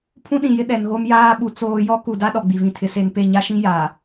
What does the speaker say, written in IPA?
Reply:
pʰ ũ˦ ɗ ĩ˨ j ɪ˦ ɗ ɛ˨ n ɣ o˦ m j aː˦ ɓ u˨ t͡s oː˦ j ɔ˦ k u˨ d a˦ ɗ ɔ˨ ɡ͡b i˨ v ĩ˨ tʰ ɪ˨˦ s e˨ n p e˦˨ ɲ a˦ ʃ ĩ˦ j a˨

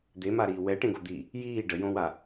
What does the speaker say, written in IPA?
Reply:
d̪ e m a ɾ iː w ɛ ʈ ẽ ɡ o d̪ i | j iː ɖ ə j õ w a

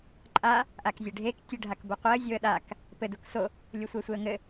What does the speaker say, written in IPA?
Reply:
ǃʼ a | ʔ a k zʲ e ɖʱ e k tʲ ɘ ɖʱ a k b o qʷ e ə̯ zʲ o ə̯ ɗ a k | p ɘ d u k s o | lʲ u sʷ e sʷ e ə̯ ŋ ɘ

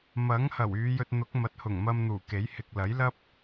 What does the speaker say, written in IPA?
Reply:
m ɐ˨˥ ŋ h ɐ˨˩ w yː˨˧ j ɵ˧ t̚ n̪ ʊ˨˥ k̚ m ɐ˨ t̚ h ʊ˨˩ ŋ m ɐ˧ m n̪ uː˨˩ k e˨˥ j h ɪ˨ k̚ l ɐ˨˥ j l ɐ˥ p̚

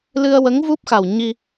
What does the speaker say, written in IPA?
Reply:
l ɨ˧ ə̯ w ə˧˥ ŋ v u˦˥ p̚ x a˨˩ w ɲ i˧

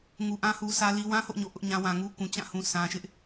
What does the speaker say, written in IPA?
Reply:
ŋ u˨ ʔ ã˦ h u˨ s ä˦ l i˦ w ã˦ h o̰˦˨ ɲ o̰˦˨ ʔ ʊ˦ ʔ ɲ ã˦ w ã˨ ŋ u˦ k ũ˨ t͡ɕ ã˦˨ h ũ˨ s ã˨ ʃ ɪ˦ ʔ

